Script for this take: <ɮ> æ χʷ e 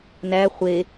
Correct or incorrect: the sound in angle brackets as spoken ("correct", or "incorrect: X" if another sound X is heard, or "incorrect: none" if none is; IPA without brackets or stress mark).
incorrect: n